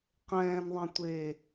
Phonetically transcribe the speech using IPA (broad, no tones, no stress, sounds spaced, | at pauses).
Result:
q ɛ̃ː n ðˤ ɛ̃ tʷ eː